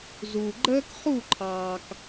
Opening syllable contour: low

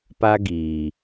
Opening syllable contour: high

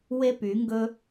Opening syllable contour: high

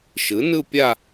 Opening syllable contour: rising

